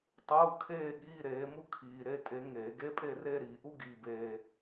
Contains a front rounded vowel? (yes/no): no